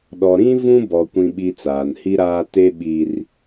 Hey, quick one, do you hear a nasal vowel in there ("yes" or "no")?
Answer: yes